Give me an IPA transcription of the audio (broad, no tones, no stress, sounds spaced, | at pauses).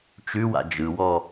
t͡ʃ ʉ w a̰ d͡ʒ ɯ w ɔ